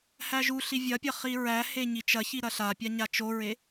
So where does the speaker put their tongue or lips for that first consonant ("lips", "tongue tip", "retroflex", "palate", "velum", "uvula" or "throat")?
throat